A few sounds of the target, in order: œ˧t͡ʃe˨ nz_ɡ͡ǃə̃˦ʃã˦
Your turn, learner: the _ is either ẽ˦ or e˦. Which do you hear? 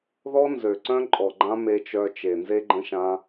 e˦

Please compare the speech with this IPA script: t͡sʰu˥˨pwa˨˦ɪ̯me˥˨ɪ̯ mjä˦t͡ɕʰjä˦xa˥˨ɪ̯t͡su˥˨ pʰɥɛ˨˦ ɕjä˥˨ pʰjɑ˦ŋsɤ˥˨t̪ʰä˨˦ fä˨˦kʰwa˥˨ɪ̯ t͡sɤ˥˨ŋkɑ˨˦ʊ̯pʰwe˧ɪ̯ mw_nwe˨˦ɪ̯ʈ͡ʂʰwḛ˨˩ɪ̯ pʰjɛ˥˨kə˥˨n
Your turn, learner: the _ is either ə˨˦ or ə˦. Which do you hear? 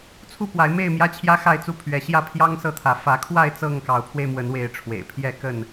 ə˨˦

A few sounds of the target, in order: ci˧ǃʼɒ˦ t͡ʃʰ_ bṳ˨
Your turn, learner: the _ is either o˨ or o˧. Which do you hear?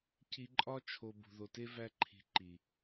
o˧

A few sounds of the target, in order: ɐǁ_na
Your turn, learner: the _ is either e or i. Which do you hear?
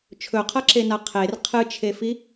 e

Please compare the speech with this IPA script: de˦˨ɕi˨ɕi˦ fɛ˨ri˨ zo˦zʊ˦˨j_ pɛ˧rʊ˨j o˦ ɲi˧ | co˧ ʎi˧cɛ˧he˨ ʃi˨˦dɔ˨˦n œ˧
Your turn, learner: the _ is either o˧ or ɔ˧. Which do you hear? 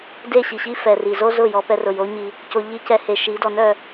ɔ˧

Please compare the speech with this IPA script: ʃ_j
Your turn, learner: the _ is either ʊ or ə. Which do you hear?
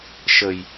ə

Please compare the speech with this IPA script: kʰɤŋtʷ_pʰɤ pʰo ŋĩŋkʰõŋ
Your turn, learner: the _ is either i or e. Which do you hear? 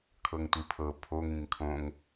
i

